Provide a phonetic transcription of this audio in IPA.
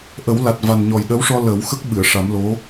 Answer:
ʔ ə˨˩˦ w l a˨˩ t̚ v a˨˩ n ɲ ɔ˨˩ j ɗ ə˧˥ w ʂ ɔ˧ l əː˨˩˦ w x ə˦˥ k̚ ɓ ɨ˨˩˨ ə̯ ʂ a˨˩˦ m l o˧˥

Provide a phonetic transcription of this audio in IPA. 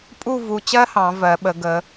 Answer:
pʼ u˥˧ v u˧ t͡ɕ ɜ˥ h ɑ̃˩˧ v ɜ˩˧ ɓ ə˩˧ ɡ ə˩˧

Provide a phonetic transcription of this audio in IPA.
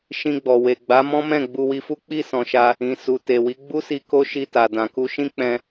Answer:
ʃ ĩ˧ ɡ͡b ɔ˨ w e˨ ɡ͡b a˨˦ m ɔ̃˦ m ɛ̃˦˨ ɡ͡b u˧ w i˧ f u˦ k͡p i˦˨ s ɔ̃˨ ʃ a˧ | ĩ˨ s u˨ t e˨ w i˨˦ ɡ͡b u˦ s i˧ k o˦ ʃ i˧ t a˨ d ã˨ k u˧ ʃ ĩ˦ k͡p ɛ̃˦

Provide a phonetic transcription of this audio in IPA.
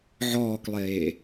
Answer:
ʕ ɔː k lˠ eː

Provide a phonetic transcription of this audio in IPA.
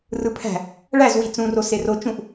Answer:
r ɯ pʰ æ̤ | ɭ æ z w i t͡s ũ r o s e r o t͡ʃ ũ ʔ

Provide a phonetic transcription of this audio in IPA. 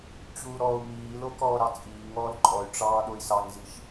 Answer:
t͡ɕ uː ɾ ɔː u̯ m iː l o k ɔː ɾ ɑ t͡sʼ iː ŋ ɔː l ǃʼ ɔ y̯ ʈ͡ʂ ɑː ɗ o i̯ s ɑ ŋ z i ʃ

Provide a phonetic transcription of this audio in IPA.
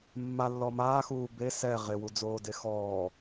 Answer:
mː a lː ɔ m aː x uː b e s ɛ ʁ ɪ w u d͡z oː d e x ɔː

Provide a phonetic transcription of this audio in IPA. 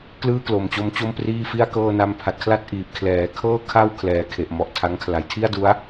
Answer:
k l ɯː˥˩ k l o˨˩ m t͡ɕ o˧ m t͡ɕ o˥˩ m p r iː˥˩ f i˥˩ a̯ k ɤː˥˩ n a˧ m pʰ a˨˩ t̚ kʰ l a˥˩ t̚ ʔ iː˨˩ p̚ kʰ l ɛː˩˦ kʰ ɤː˥˩ kʰ a˥˩ w kʰ l ɛː˨˩ kʰ e˨˩ ʔ m ɔ˨˩ ʔ tʰ a˦˥ ŋ kʰ l a˩˦ j tʰ i˥˩ a̯ d u˦˥ a̯

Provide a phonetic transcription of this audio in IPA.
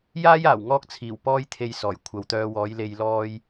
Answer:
j aː˥ j aː˨˩ w ŋ ɔː˥ k̚ t͡sʰ iː˨˩ w p ɔː˥ j t̪ʰ e˧ j s ɔː˨˩ j kʷʰ ɐ˨ w t̪ œː˧ w ɔː˨˥ j l e˧ j l ɔː˧ j

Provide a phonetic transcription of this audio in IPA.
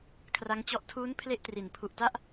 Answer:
kʰ r a˦˥ ŋ t͡ɕ ɔ˦˥ ʔ tʰ uː˦˥ n pʰ l e˥˩ ʔ t r i˩˦ n pʰ u˨˩ ʔ t a˥˩ ʔ

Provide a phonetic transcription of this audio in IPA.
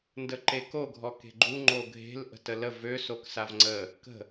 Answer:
n d ə ǃ e k o ɡʱ ɔ k e̤ ɡ͡ǃ u ŋ͡ǃ o ɡʱ e̤ l ʔ ə̤ t ə l ə v ø s o k s a v ŋ͡ǀ ə | k ə̤

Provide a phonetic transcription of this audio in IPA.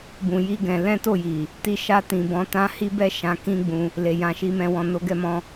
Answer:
b ũ˧ j i˦ ɡ ɛ̃˧ l ɛ̃˦ t o˦˨ j i˨ | t i˧ ʃ a˧ t ĩ˨ b ɔ̃˨˦ t ã˦ h i˦ b ɛ˦ ʃ ã˧ k ĩ˦ ɡ͡b ũ˧ | l e˨ j ã˧ ʃ i˧ m ɛ̃˧ w ɔ̃˨ n o˧ ɡ ɛ˧ m ɔ̃˧

